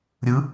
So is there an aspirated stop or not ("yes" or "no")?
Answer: no